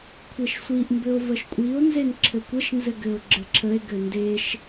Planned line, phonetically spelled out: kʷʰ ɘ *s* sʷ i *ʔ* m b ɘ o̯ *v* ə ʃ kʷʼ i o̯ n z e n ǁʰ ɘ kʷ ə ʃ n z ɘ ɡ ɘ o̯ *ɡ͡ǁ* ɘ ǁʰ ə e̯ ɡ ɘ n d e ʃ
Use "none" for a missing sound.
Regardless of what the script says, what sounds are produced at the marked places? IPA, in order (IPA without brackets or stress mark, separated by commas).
ʃ, ʔ, v, ɡ͡ǁ